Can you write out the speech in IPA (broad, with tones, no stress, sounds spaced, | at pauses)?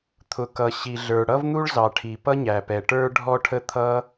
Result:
t̪ʰ ʊ˩ k ʌ˩ ɕ i˩ ɮ ə˞˩ ɽ ʌ˥ v n̪ u˥ ɭ z ɑ˩ ʈʰ i˩ p ʌ˥ ɲ æ˩ p ɛ˩ ʈ ə˞˥ ɖʱ ɔ˥ ʈʰ ə˥ t̪ʰ ʌ˥